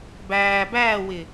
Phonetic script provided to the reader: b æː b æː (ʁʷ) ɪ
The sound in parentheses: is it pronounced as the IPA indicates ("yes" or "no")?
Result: no